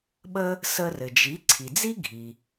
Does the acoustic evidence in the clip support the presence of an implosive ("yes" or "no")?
yes